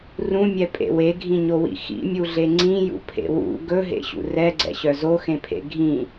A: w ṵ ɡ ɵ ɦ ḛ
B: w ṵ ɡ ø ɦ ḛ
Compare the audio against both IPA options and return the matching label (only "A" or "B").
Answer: A